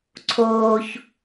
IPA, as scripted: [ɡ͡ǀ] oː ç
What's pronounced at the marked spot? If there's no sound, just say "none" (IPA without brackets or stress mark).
ǀʰ